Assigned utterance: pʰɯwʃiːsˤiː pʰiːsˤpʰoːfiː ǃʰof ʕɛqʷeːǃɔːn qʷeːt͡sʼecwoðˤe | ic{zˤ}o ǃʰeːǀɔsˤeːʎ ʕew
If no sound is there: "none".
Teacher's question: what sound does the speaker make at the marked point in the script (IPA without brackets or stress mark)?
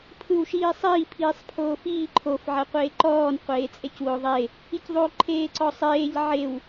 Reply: ðˤ